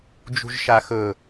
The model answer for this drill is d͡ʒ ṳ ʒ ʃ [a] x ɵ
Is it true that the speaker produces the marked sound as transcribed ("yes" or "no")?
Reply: yes